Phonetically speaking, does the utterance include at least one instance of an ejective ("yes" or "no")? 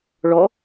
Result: no